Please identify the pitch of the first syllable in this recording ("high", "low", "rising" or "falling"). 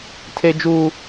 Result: high